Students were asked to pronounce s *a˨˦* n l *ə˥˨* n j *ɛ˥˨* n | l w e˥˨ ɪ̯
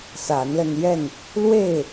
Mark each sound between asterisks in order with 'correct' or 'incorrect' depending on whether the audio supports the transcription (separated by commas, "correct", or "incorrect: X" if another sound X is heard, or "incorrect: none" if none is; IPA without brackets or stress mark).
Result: correct, incorrect: ə˧, correct